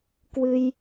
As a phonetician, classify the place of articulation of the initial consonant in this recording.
velar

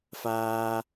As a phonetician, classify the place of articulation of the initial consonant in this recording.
labial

